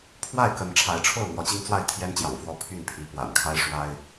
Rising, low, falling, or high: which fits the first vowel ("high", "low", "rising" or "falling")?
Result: falling